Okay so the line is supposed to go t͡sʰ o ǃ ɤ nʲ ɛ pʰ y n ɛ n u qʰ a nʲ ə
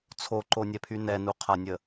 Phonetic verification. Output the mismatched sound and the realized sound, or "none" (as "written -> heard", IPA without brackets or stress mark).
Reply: ɤ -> o